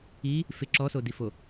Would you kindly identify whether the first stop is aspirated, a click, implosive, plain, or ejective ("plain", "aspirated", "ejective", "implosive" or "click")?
click